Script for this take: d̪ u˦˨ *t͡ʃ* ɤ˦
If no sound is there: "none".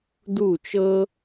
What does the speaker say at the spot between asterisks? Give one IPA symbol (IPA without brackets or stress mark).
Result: t͡ʃ